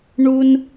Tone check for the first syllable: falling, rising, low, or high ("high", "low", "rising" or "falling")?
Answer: high